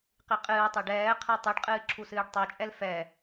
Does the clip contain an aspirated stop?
yes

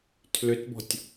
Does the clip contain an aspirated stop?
yes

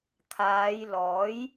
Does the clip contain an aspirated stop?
yes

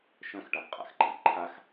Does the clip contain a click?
yes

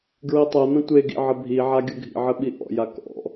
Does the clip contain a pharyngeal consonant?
yes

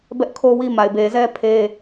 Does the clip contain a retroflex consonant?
no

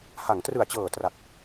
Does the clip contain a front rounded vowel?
no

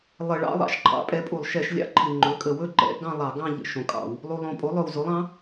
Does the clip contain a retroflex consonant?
yes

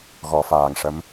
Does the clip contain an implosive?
no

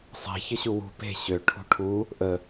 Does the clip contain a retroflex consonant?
yes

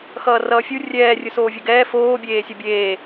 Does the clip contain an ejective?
no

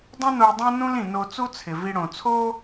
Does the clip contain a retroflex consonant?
yes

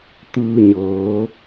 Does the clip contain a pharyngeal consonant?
no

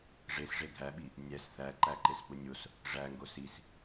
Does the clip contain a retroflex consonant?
yes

